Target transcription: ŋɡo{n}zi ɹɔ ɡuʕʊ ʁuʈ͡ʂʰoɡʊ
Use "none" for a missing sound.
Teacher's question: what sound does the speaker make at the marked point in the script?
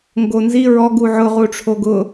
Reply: n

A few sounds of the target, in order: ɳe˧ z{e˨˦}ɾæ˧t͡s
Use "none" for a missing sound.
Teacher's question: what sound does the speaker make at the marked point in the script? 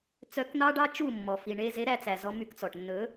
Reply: e˨˦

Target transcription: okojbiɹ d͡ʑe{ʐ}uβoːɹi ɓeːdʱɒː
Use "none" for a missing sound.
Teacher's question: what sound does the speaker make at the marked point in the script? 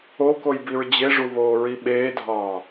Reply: ʐ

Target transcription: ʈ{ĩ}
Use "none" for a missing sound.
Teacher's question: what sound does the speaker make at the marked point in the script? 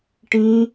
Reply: ĩ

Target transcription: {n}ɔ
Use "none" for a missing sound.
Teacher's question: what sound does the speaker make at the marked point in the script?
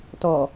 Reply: t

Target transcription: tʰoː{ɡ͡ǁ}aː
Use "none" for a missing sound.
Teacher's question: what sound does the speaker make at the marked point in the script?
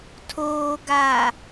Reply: ɡ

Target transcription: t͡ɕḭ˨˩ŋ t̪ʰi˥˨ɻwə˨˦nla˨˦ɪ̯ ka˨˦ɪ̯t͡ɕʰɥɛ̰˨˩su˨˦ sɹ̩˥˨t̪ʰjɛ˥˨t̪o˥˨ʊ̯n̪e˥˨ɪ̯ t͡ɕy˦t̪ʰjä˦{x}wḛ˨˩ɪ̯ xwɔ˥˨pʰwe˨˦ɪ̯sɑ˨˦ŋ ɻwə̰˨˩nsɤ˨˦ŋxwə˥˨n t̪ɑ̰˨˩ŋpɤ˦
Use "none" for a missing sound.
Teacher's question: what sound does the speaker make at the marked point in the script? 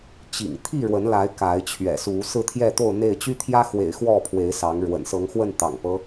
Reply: x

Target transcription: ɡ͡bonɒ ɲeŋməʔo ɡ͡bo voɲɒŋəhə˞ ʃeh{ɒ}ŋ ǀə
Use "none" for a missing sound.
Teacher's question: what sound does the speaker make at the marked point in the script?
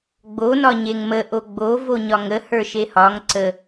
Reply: ɒ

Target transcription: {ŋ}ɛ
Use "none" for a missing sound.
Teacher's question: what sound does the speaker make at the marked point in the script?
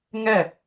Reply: ŋ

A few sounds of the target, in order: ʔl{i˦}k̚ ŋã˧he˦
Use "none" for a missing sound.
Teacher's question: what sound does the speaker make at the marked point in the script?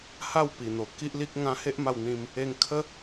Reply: i˦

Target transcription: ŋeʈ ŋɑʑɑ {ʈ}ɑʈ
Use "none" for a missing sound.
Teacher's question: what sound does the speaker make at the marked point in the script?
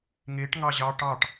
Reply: ʈ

